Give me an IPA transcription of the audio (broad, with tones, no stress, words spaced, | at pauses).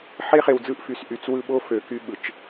ħe˦χe˨wd͡zɯ˦˨ʔ fy˨sʔy˨t͡swɯ˦ ɓo˦ fø˨ky˦ ɓɯ˨t͡ʃ